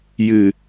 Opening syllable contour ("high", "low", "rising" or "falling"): low